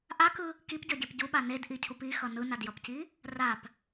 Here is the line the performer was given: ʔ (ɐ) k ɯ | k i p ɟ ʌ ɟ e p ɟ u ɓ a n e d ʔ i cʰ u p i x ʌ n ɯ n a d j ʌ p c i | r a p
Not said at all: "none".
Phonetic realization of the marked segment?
a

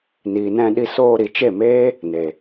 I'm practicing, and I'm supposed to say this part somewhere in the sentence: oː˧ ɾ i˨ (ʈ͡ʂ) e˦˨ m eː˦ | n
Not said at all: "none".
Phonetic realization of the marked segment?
t͡ʃ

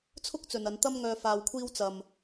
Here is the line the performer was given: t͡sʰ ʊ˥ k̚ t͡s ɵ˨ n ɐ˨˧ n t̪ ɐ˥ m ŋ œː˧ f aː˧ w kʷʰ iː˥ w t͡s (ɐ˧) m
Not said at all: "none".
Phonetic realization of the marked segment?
ɐ˧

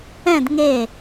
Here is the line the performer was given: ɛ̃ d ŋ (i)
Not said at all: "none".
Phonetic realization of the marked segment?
e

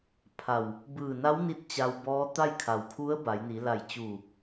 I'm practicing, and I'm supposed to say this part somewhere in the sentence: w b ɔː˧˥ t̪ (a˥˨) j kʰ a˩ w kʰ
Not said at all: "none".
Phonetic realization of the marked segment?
a˥˨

